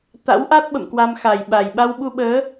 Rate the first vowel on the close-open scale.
open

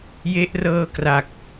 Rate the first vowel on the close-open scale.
mid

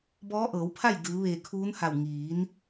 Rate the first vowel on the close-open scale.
mid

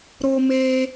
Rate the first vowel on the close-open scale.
mid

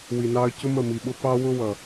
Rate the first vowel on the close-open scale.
close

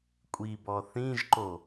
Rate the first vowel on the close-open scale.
close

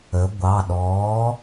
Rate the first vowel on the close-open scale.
mid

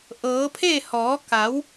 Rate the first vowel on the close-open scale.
mid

